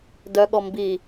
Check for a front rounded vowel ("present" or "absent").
present